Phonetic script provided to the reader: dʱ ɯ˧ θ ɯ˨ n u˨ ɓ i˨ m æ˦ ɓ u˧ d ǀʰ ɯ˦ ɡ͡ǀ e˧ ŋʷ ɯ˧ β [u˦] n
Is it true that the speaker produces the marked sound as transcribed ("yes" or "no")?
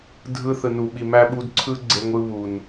no